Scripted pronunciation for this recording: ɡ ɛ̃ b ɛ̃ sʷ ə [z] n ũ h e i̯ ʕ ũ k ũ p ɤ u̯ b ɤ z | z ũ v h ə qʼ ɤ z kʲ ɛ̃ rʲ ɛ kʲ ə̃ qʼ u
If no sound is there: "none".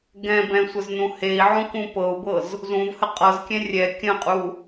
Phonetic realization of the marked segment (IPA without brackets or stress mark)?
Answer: z